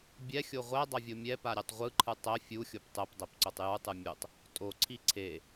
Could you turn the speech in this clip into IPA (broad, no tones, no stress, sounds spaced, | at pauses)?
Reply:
bʲ ɛ xʲ o ʁʷ ɛ dˤ ʌ vʲ o mʲ ɛ p a ɾʲ ɛ tˤ ʁʷ ɯ ǃʰ ɯ tˤ ɛ fʲ u xʲ o p tˤ ɛ p dˤ ɛ p ǀ o tˤ j u tˤ ɯ mʲ u tˤ | tʼ o ǀʰ i ǀʰ e